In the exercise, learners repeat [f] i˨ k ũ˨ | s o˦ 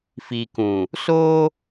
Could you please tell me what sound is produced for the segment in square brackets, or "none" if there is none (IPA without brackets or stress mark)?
f